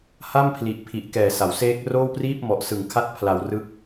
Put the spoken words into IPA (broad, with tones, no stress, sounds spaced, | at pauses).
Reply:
h a˥˩ m pʰ l i˨˩ ʔ pʰ i˨˩ ʔ k ɛː˨˩ s a˩˦ w s eː˦˥ k̚ r oː˥˩ w p r iː˥˩ p̚ m ɔ˨˩ ʔ s ɯ˨˩ ŋ kʰ a˦˥ t̚ pʰ l a˧ w r ɯ˦˥ k̚